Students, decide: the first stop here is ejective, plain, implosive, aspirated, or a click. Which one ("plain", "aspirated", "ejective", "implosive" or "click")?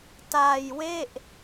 plain